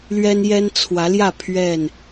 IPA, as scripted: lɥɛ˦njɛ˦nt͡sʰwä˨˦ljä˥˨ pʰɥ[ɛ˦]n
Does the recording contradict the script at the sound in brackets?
yes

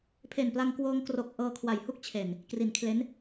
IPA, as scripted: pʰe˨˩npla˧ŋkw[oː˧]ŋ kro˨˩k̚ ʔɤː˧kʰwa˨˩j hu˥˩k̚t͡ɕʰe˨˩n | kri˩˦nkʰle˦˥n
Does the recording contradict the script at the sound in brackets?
no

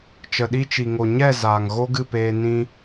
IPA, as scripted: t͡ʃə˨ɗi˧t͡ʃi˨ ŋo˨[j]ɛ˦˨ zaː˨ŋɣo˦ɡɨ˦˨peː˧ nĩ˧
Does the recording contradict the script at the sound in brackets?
yes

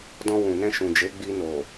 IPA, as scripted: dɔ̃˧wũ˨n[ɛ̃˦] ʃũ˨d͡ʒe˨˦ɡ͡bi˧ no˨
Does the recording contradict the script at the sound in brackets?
yes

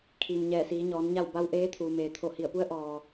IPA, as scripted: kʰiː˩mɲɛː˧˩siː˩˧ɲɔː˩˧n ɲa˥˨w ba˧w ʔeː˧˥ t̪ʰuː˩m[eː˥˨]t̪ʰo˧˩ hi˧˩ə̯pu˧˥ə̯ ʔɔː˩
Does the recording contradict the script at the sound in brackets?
yes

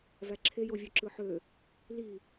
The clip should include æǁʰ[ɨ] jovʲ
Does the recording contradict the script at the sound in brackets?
yes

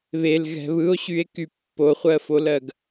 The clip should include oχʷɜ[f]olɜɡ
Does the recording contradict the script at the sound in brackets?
no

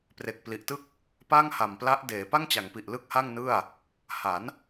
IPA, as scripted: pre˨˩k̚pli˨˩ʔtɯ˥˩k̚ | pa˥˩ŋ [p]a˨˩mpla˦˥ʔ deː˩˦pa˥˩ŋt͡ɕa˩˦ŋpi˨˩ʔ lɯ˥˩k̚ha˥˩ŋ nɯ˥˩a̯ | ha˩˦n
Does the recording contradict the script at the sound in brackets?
yes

